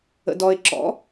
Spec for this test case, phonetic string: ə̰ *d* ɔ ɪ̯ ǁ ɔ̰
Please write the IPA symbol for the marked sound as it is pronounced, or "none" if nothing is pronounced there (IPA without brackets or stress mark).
d